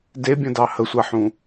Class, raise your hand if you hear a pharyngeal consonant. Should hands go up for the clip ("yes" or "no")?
yes